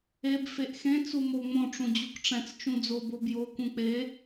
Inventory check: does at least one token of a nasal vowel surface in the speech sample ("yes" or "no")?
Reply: yes